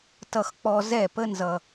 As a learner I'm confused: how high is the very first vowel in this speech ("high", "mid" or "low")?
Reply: mid